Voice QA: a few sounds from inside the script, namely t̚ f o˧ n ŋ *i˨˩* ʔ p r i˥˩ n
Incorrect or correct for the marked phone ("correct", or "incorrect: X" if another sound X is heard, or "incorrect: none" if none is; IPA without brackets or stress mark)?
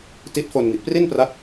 correct